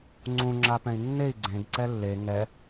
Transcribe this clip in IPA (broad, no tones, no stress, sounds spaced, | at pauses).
ŋ͡ǀ ũ ŋ͡ǁ a p ɛ̃ i̯ nː e i̯ ɡ͡ǀ ẽ ɡ ǀ ɛ lː e ŋ ɛ